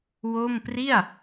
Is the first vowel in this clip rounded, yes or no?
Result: yes